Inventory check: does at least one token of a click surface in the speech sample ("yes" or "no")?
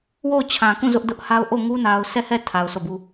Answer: no